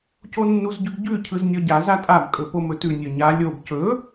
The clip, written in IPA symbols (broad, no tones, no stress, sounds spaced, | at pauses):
c o nː u z ɟ ʉ b ɟ ʉ cʰ ɯ z nʲ ɔ ɟ a z a tʼ a b kʼ ɵ p o m ɵ t ʉ nʲ ɵ ɲ a lʲ o b c ɵ